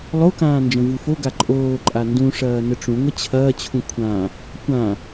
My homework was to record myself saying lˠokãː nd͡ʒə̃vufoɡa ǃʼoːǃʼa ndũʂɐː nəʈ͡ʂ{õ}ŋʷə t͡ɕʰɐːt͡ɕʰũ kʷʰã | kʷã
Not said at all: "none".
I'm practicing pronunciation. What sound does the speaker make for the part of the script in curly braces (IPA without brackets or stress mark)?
ũ